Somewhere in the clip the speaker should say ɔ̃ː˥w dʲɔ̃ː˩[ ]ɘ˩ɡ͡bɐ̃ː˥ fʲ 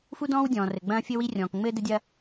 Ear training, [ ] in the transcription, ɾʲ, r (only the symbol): r